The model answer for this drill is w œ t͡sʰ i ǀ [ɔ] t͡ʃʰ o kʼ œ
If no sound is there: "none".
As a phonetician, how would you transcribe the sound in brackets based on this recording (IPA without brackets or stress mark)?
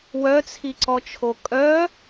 ɔ